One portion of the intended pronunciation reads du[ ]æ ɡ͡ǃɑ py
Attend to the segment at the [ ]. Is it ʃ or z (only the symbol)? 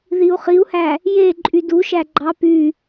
ʃ